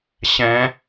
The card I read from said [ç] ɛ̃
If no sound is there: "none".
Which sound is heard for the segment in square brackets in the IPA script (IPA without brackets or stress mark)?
ɕ